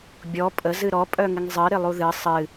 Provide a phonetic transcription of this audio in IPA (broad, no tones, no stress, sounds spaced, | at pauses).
bʲ ɔ pʼ ə z ɨ ɾ ɔ pʼ œ ŋ ɪ ŋ zˤ ɨ ɾ ɪ lˠ u ð ɨ sˤ ɨ